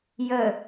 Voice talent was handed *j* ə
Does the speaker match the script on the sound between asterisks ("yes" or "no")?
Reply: yes